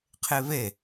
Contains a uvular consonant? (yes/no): yes